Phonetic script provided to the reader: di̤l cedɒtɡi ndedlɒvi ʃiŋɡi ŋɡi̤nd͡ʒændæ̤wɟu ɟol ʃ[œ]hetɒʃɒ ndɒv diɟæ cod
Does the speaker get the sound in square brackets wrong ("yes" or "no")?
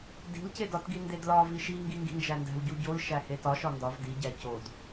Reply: yes